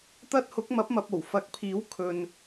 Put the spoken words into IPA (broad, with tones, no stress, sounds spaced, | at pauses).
t̪ ɐ˥ t̚ h ʊ˨˥ k̚ m ɐ˨˥ p̚ m ɐ˨ p̚ o˨˩ w f ɐ˨˥ k̚ pʰ iː˨˥ w kʰ ɵ˨ n